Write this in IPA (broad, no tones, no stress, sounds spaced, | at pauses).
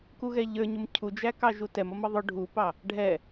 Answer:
k u ɣ ɛ ʎ ə˞ ɲ ʊ m cʰ u d͡ʒ æ k ɑ ʒ u t ɛ m ʌ m ʌ ðˤ ʊ ɖʱ u p ɑ | ɖʱ ɛ